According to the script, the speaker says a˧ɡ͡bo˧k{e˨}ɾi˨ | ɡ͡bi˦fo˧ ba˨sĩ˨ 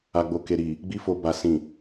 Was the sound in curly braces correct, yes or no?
no